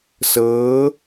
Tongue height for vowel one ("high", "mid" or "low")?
mid